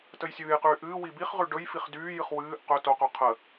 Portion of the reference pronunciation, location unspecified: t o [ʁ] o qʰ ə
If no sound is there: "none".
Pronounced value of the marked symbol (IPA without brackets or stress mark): q